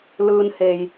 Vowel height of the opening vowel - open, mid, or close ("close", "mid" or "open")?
close